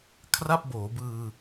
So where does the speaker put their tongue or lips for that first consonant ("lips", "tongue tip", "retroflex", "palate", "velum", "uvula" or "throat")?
velum